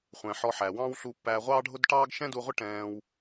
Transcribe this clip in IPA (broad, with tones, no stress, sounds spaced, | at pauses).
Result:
χʷ ɛ̃˨ ħ ɔ˧ ħ æ˨ w ɑ̃ː˦ w ɬ u˧ pː æː˧ ʁʷ ɑː˦ ɖʱ ʊ˦ d ʈ ɑː˦ ɡ ʃ ɛ̃˦ d u˧ ʁʷ ɪ˦ ʈ ɛ̃ː˧ w